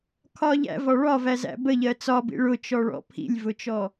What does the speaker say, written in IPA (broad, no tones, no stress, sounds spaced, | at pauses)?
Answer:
kʰ ɒ ʎ æ̰ v ɒ ɭ ɒ v æ z æ̰ b ə ʎ ɜ t͡s ɒ b ḭ ɭ ʊ t͡ʃ ɔ ɭ ɔ̰ pʰ ḭ lʲ v ʊ t͡ʃ ɔ